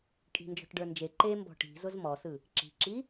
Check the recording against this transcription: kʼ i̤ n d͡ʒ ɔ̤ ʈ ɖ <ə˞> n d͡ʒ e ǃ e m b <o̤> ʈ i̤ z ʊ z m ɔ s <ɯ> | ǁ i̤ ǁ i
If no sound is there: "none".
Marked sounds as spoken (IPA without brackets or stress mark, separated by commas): ə˞, ɔ̤, ɯ